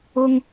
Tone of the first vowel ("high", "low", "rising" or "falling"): high